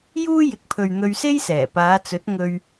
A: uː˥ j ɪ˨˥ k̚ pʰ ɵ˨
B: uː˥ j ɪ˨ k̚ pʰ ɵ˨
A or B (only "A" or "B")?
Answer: B